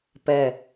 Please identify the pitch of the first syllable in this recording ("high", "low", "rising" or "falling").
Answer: falling